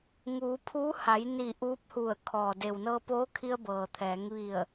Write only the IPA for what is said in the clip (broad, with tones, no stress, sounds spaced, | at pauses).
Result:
ŋ uː˩˧ pʰ uː˧˥ h a˩˧ j n i˧˩ ʔ uː˧˥ p̚ h u˧˩ ə̯ kʰ ɔː˩ d e˩ w n ɤː˧ p oː˧˥ kʰ i˧ ə̯ b ɤː˩ t̪ʰ ɛː˩˧ ŋ ʋ i˧˩ ə̯